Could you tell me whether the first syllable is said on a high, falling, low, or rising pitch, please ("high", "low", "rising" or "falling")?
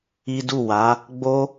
high